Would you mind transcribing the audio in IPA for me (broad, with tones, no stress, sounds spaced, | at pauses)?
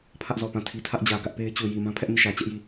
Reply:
pʰ ä˦ ʔ z ɔ˨ p ã˦˨ tʰ i˦ tʰ ä˦ ʔ d͡ʑ ä˨ ɡ ä˦ ʔ p e˦ ɪ̯ t͡ɕ u˨ j i˨ m ã˦ pʰ ɛ˦ ʔ m i˦˨ ʃ ä˨ t͡ɕ ɛ˦ ʔ j i˦˨